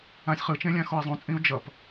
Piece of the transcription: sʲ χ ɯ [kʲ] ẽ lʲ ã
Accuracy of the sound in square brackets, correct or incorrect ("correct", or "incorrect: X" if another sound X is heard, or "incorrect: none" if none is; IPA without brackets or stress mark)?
incorrect: t͡ʃ